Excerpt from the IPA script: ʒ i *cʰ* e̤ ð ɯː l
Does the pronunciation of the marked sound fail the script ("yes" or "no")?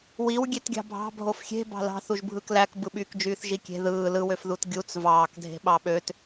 yes